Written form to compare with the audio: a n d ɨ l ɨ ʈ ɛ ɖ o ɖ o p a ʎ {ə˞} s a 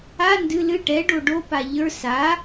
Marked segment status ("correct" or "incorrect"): correct